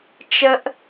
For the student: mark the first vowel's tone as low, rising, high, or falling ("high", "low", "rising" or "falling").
high